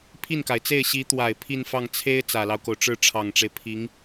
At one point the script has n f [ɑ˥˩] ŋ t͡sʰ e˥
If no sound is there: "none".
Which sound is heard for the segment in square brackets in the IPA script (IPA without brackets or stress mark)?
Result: ɑ˥˩